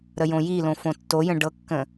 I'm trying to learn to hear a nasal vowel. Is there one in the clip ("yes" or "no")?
yes